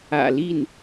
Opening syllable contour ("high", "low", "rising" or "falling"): low